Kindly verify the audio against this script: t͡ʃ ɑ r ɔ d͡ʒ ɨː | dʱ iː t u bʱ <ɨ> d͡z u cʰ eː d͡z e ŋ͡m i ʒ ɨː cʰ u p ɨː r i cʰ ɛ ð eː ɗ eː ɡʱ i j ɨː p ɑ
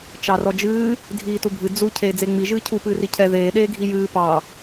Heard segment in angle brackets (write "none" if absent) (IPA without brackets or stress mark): ɨ